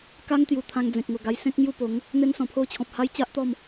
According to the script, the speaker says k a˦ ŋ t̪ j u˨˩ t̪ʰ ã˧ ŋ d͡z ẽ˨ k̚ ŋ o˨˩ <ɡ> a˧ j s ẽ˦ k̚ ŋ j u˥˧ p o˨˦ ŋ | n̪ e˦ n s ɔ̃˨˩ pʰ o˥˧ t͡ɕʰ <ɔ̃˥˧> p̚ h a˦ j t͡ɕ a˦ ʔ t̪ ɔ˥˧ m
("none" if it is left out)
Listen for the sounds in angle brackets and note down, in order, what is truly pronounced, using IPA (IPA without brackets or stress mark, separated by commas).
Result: ɡ, ɔ̃˨